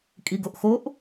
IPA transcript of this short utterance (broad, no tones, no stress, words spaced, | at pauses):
kʼiɡoʔxoʔ